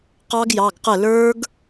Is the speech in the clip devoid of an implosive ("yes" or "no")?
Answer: yes